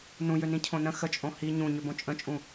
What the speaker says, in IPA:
n ũ j ø n ĩ cʰ õ n ə̃ x ə t͡ʃʼ õ h i ɲ ũ ɲ ø b õ t͡ʃʼ ə̃ t͡ʃʼ ũ

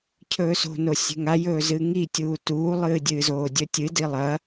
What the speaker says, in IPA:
cʰ ɵː s o̤ n o sʲ e̤ ŋ a j ɵː z ɨ ŋ i tʲ uː t uː lˠ ɨː dʲ ɨː z oː dʲ ɵ tʲ ɨ d i lˠ ɐ

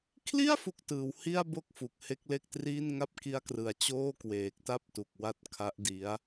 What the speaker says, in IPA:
kʰ l i˥˩ a̯ f u˥˩ k̚ t ɯː˩˦ w h i˥˩ a̯ b o˥˩ k̚ f u˨˩ k̚ h e˦˥ k̚ l e˥˩ k̚ t r iː˥˩ n ŋ a˥˩ p̚ k i˦˥ a̯ k r ɯ˨˩ a̯ t͡ɕ oː˥˩ k w eː˨˩ k̚ t a˥˩ p̚ t u˨˩ k̚ w a˦˥ t̚ kʰ a˦˥ ʔ d i˦˥ a̯

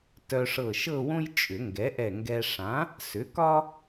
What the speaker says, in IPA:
t œ˧ ʂ ɤ˧˩ ʃ ɤ˥˧ w õ˥ j t͡ʃʼ ʏ˨˩˦ ŋ ɡ ɛ˩˥ ʔ ɛ˧˩ ŋ ɡ ɛ˧ ʂ ã˩˥ | s ʏ˩˥ k ɒ˥

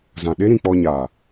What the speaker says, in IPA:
z ã˨ ɗ e˦ ɾ ĩ˨ k͡p ɔ˧ ɲ aː˨

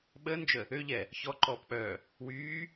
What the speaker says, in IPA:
ɓ əː n d͡ʒ ə | ø ʎ ɛ | ç ɔ ǃ ɔː p k͡p œː | w yː

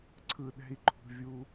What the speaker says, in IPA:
ǀʰ ɯ˧ ɗ ɛ̤˦ i̯ ǃʰ ṳ˧ vʲ u˦

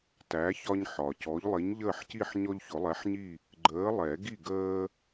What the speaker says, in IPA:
t æ˨˥ ç ɒ˦ ɲ ħ ɒ˩ c ɔ˨˥ ʎ lˠ i˨˥ ɲ ʎ əː˥˨ ħ c i˥˨ ħ ɲ ɔ˦ ʎ ç ʊ˨˩˦ lˠ ɛ˨˥ ħ ɲ i˥˨ | ɡ͡ǃ əː˨˥ lˠ ɛ˨˩˦ ɡ i˥˨ ɡ əː˦

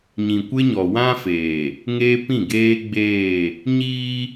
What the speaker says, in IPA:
ɲ ĩ˨ kʷ ɪ˦ ɲ ɔ˨ w ã˦ f eː˨ | ŋ eː˦ p ĩ˦˨ ɡ eː˦ ɡ͡b eː˦˨ | ɲ iː˦

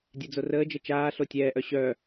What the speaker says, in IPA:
dʲ ɛ d͡z o r əː d͡ʒ ə t͡ʃ aː ɬ o tʲ ɛː ʔ œ ɕ œː

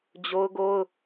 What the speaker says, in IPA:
d͡ʑ o˦ ʊ̯ ɡ o˦ ʊ̯

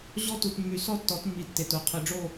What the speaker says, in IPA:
ʑ ɔ˦ t u˩ t mː y˩ s ɔ˦ tː ɔ˩˧ t mː i˩ tː e˩ t o˩˥ qʰ i˩ ɖ͡ʐ o˦˨

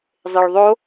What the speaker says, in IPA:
zˤ e ɭ ðˤ o

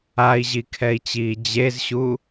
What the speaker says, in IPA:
a i̯ ʑ i kʰ ɛ i̯ t͡ɕ iː d͡ʑ e z ɕ u

